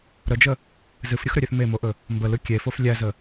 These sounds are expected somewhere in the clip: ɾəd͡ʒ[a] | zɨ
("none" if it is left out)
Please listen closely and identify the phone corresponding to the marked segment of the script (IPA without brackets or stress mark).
ə